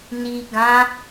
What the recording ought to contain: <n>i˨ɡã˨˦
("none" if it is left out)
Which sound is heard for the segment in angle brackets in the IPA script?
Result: n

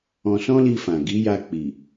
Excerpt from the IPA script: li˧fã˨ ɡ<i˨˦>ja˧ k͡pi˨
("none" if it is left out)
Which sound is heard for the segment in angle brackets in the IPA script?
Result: i˨˦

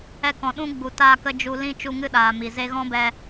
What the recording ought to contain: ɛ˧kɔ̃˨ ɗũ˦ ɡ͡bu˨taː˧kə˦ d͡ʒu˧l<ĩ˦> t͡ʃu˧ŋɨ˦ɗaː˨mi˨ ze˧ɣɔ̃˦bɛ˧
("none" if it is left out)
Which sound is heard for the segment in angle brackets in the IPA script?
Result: ĩ˦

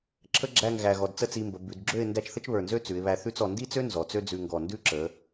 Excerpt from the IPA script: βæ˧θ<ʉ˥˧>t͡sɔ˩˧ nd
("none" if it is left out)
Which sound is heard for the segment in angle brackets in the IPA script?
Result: ʉ˥˧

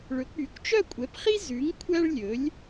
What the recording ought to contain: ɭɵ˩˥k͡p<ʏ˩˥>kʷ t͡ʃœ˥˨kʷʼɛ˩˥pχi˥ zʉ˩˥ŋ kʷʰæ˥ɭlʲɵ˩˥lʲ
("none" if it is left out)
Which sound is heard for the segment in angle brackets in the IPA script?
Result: y˩˥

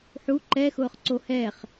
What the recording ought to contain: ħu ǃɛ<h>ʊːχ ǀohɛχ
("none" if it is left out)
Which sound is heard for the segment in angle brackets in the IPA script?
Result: x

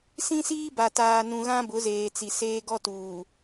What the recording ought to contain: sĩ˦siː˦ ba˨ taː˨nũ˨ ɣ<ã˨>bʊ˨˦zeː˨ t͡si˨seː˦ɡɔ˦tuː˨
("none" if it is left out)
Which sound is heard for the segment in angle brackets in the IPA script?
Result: ã˦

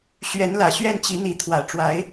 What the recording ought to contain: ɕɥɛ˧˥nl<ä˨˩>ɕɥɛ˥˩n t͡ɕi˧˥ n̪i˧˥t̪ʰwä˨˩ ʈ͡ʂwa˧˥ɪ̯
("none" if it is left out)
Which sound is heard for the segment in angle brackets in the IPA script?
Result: ä˨˩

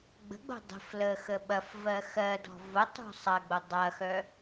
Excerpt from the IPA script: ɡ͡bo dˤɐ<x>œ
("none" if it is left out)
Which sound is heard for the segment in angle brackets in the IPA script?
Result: x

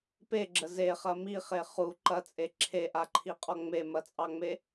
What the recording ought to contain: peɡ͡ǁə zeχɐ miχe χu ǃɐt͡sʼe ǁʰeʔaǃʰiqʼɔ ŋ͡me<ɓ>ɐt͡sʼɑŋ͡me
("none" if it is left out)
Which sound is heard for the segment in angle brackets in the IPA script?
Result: m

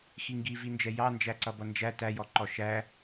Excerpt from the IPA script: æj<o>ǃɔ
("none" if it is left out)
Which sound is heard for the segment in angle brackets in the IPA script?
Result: ɔ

